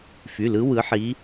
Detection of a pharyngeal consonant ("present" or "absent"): present